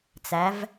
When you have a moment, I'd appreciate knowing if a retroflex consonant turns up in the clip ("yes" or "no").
no